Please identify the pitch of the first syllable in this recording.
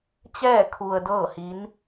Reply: falling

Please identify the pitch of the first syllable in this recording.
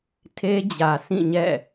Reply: high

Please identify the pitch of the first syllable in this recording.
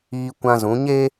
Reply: high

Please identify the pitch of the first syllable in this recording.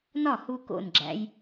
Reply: falling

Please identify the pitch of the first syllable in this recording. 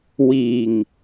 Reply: low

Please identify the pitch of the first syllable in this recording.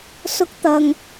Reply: high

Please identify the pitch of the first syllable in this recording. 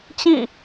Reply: falling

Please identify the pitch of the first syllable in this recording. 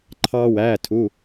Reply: high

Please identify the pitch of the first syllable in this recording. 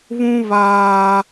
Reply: low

